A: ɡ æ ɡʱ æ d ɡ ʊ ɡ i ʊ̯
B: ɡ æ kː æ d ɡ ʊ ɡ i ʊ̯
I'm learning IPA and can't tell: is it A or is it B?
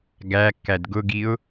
B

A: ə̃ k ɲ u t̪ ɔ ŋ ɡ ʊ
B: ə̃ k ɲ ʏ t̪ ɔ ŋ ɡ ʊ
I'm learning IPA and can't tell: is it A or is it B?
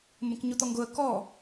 A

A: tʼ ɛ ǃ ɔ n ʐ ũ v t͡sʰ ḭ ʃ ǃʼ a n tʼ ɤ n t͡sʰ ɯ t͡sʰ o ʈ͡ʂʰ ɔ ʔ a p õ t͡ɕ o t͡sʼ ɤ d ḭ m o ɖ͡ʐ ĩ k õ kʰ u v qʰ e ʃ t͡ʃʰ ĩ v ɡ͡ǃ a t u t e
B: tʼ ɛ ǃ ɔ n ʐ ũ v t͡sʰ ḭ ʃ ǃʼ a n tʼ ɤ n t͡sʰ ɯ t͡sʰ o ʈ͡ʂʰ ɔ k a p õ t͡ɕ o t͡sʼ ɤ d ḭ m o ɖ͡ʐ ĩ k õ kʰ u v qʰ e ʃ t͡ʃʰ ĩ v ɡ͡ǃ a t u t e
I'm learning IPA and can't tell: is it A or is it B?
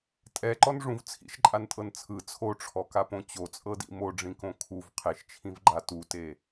B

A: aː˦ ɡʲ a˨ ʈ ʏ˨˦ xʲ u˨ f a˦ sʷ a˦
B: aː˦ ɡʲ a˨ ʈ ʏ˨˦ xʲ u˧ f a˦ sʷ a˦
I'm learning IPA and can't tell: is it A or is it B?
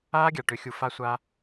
A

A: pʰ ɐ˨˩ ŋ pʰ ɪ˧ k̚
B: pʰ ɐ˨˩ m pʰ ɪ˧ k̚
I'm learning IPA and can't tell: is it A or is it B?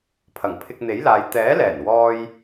A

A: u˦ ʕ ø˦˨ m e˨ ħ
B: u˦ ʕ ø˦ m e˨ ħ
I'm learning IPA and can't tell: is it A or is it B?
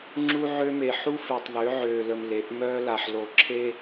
B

